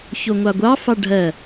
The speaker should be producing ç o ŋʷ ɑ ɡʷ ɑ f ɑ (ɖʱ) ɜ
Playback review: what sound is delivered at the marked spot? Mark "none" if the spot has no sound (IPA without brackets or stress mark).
ɖʱ